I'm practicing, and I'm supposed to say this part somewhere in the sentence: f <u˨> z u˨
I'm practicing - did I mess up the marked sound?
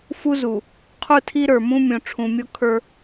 yes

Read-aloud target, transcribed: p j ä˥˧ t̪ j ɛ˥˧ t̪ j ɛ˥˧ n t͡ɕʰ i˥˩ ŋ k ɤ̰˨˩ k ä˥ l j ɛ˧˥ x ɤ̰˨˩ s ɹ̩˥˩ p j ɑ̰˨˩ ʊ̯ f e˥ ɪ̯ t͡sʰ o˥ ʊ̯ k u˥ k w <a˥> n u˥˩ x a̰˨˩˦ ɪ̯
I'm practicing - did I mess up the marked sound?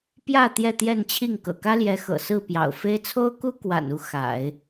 yes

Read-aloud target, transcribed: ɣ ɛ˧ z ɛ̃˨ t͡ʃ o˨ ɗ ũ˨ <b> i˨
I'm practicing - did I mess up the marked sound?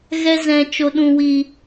yes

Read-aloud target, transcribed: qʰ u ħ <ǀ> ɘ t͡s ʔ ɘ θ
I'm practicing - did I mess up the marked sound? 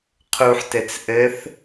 yes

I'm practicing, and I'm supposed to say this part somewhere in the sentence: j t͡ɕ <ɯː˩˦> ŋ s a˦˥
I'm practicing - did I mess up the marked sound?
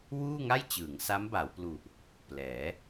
no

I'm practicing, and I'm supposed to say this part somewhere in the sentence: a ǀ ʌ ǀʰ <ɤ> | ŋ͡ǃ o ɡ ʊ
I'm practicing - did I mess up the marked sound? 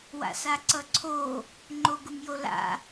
yes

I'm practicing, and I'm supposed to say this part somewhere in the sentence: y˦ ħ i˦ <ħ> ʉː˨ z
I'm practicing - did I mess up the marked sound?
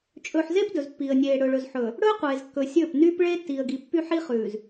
yes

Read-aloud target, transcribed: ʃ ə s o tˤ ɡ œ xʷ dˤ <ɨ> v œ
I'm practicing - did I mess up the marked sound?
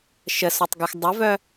yes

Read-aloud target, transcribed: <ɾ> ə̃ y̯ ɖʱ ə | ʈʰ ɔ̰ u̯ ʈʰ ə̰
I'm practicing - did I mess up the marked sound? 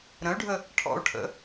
no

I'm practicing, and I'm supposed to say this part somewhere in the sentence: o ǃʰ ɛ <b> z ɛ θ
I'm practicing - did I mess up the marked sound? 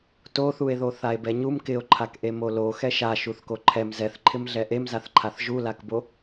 yes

